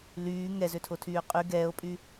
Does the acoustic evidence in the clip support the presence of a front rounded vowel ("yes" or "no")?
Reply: yes